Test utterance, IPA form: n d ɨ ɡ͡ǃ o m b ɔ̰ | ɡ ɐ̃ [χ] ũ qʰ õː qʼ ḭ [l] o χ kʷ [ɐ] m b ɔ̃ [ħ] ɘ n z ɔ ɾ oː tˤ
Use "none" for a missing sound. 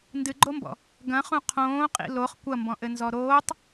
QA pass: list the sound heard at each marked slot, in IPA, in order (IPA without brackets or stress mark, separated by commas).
χ, l, ɐ, ʔ